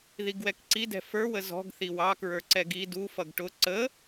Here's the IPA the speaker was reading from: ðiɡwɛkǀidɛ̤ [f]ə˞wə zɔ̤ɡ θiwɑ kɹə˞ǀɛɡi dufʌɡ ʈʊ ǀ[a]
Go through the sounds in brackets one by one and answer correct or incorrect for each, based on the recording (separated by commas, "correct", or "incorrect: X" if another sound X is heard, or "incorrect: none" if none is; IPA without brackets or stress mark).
correct, incorrect: ə